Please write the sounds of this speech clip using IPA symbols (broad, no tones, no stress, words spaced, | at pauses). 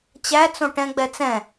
t͡ɕæt͡sõ ʈɛ̃ɡ͡bɛ t͡sɛ̃